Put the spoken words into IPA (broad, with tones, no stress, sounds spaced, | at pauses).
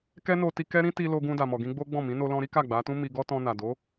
k ɛ˦ n o˧ t i˧ k ɛ˦ ɾ ĩ˦ t i˧ l o˧ ɡ ũ˧ d a˨ m ɔ˨ ɡ ĩ˧ ɡ͡b o˦ ɡ͡b ɔ̃˦˨ m ĩ˨˦ n o˧ l ɔ̃˧ ɾ i˦ k a˦˨ ɡ͡b a˨˦ t ũ˦ m i˧ ɡ ɔ˦ t ɔ̃˧ n a˨ d o˨˦